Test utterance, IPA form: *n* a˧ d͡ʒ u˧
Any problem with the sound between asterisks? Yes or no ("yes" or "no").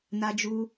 no